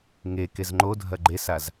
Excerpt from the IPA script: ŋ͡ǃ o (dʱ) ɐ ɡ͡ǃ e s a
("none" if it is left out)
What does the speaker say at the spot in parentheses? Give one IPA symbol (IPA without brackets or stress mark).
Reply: dʱ